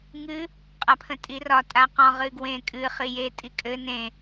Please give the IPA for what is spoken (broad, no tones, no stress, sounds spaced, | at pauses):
ŋ ɨ | qʼ a pʰ ə̃ tʼ i r ɒ tʼ a q ɔ̃ ʁ ɨ ɡ w ẽ kʼ ɨ χ i j e tʼ i kʼ ɘ n ẽ